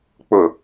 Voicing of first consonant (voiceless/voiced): voiceless